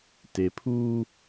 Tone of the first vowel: low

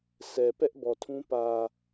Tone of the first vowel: low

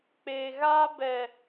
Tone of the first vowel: low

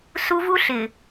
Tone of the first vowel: high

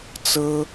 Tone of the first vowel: high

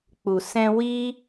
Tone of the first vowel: low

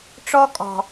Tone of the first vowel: high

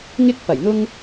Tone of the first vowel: high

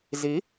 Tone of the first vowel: rising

